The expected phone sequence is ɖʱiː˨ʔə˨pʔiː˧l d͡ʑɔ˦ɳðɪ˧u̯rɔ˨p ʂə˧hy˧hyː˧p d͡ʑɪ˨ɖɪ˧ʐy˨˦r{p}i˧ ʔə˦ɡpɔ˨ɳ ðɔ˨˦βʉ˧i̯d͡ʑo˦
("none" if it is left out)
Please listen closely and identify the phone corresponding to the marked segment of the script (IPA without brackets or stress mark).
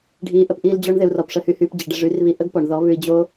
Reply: β